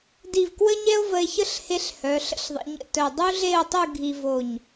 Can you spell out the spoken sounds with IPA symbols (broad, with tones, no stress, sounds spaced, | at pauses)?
d i˧˩ v k w ə˥ ɲ ɛ˥ o̯ v ə˧ e̯ ç ə˥˧ ɬ h e˧ ɬ h œ˩˧ ɬ ə̰˥˧ ɬ ðˤ ə̰˩˧ ɲ ə̰˧˩ t œ˧˩ dˤ u˥ ɮ e˥˧ o̯ tˤ u˥˧ ɡʱ i˧ v o˧˩ ɲ